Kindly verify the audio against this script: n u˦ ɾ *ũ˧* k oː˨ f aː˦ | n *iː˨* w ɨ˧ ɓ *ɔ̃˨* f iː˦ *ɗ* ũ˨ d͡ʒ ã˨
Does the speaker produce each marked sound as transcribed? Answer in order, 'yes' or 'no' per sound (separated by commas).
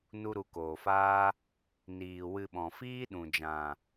no, yes, yes, yes